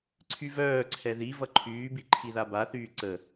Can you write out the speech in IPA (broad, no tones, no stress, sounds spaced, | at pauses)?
ǀʰ y v œː ǀʰ ɛ ð i v ʌ ǃʰ yː b i ǃʰ i ð a b a θ yː ǀ ə